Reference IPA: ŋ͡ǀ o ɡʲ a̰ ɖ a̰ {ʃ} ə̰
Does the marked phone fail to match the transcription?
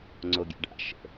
no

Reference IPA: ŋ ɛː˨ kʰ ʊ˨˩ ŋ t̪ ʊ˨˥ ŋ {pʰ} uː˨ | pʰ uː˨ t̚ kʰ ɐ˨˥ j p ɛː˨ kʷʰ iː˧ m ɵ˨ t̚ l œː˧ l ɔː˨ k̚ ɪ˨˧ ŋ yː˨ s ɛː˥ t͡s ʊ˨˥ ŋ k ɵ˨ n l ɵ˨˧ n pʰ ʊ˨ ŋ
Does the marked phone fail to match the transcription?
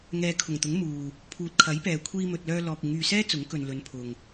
yes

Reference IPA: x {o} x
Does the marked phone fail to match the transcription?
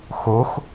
no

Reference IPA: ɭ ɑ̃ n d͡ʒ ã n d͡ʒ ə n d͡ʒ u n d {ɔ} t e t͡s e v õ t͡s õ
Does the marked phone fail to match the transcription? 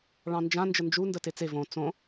yes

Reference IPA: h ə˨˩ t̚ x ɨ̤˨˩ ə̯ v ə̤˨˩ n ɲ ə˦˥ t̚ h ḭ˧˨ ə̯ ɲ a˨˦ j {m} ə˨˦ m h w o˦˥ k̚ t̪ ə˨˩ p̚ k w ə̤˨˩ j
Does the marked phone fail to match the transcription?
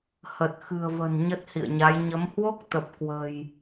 yes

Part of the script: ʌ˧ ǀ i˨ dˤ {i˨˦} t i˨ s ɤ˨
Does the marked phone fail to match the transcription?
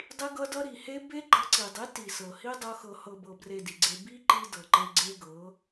no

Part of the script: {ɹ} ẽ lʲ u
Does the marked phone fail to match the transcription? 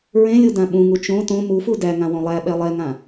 no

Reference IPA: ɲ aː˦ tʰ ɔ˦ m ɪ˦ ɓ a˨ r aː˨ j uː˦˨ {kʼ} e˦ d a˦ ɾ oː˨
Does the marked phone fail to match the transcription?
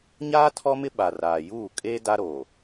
no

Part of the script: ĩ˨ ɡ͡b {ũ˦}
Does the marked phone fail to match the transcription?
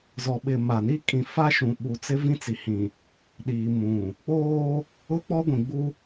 yes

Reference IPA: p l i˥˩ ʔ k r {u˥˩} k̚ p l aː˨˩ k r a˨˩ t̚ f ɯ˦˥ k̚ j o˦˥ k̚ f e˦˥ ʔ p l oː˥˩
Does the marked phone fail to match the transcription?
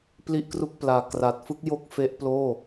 no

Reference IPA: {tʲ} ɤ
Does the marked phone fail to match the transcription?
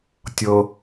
no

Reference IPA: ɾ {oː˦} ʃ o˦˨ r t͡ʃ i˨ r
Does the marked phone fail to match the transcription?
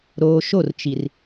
yes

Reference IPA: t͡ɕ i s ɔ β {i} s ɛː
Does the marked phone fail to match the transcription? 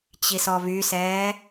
yes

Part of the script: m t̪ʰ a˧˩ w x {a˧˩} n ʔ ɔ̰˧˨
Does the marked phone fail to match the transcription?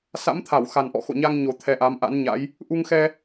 yes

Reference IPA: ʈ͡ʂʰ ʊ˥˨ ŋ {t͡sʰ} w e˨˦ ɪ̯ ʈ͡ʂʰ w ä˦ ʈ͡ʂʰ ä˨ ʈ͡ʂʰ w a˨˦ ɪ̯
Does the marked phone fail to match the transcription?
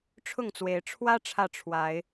yes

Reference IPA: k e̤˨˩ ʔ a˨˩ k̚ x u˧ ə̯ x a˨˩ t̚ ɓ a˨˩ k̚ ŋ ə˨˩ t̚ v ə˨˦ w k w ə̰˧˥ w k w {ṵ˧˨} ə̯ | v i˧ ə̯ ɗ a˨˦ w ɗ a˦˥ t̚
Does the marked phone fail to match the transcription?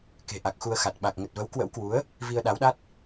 yes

